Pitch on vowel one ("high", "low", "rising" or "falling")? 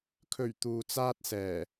low